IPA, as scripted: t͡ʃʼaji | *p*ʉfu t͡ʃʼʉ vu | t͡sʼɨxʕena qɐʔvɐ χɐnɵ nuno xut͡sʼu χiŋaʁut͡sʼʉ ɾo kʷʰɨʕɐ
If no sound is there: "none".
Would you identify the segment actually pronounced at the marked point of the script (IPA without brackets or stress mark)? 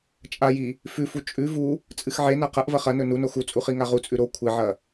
f